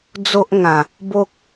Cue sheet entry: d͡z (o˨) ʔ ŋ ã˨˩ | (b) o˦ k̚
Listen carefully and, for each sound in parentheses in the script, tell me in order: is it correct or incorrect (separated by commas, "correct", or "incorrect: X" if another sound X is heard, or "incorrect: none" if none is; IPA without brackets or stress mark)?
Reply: incorrect: o˦, correct